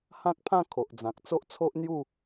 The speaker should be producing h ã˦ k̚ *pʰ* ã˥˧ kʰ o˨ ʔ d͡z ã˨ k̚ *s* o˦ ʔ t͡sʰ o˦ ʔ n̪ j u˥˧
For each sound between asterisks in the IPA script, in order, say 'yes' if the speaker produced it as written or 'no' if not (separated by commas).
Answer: yes, no